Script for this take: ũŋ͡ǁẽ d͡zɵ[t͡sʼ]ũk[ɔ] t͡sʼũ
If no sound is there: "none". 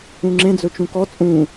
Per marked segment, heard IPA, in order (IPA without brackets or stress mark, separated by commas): t͡ʃ, ɔ